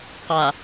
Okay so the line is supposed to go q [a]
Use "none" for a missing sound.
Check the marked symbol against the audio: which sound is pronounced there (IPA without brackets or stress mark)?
a